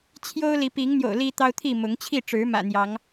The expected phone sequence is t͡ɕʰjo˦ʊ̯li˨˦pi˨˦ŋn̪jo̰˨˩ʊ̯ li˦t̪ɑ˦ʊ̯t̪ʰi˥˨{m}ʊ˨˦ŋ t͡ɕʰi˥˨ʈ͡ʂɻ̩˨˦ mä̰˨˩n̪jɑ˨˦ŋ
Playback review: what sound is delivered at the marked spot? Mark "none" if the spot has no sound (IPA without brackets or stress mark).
m